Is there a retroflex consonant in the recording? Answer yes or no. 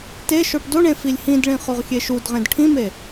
yes